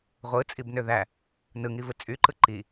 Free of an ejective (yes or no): no